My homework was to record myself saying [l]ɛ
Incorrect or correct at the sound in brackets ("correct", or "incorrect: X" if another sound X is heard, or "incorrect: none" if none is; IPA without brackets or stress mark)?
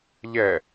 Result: incorrect: ʎ